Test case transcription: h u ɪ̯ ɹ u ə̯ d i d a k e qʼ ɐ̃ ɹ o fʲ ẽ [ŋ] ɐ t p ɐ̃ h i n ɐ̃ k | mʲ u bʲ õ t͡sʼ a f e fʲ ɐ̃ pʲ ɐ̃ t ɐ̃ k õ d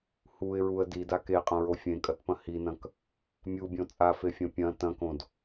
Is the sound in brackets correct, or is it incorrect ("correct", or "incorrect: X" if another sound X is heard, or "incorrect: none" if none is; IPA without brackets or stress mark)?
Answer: incorrect: kʼ